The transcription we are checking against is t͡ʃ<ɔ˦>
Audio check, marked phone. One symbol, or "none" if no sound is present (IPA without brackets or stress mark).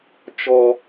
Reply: ɔ˦